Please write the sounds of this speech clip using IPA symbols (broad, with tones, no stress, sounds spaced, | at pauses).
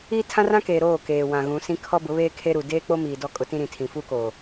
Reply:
iː˦ tʰ ã˦ r ã˦ k eː˨ ɾ oː˦˨ k eː˨ w ã˨ ɣ ũ˨˦ s ĩ˦ kʰ ɔ˦ b ʊ˨˦ β eː˦ kʰ e˦ ɾ u˨ d eː˦ k͡p o˦ m iː˨ d ɔ˦ kʼ ʊ˦ t ĩ˦ ɾ ĩ˨ tʰ ĩ˨ f u˦ k oː˨